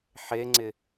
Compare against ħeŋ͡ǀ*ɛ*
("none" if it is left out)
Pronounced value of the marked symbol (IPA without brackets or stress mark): ɪ